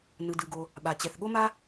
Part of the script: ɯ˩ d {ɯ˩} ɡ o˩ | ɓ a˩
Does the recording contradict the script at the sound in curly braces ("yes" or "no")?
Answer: no